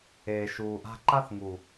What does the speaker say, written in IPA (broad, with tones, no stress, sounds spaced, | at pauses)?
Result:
eː˨ ʃ uː˨ ʔ a̤˦ ǃ a˦ θ ŋ u˨